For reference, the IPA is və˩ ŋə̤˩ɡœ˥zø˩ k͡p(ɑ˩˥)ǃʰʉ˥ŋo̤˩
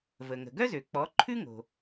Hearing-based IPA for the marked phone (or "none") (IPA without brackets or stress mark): ɔ˩˥